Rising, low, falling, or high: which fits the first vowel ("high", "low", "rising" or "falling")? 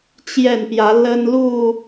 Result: falling